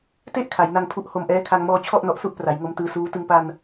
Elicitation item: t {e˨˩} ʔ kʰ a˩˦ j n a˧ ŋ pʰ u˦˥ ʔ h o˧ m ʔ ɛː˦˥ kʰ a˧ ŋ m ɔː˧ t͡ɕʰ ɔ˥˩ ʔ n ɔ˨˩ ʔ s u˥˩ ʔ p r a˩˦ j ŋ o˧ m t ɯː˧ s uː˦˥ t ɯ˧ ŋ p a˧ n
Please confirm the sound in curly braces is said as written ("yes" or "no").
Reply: no